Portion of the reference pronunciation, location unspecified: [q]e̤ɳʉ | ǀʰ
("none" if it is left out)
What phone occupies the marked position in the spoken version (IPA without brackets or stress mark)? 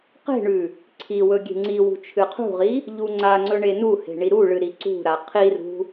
q